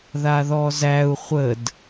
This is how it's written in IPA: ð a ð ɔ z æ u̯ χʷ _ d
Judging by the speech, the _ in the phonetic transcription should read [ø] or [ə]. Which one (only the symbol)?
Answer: ə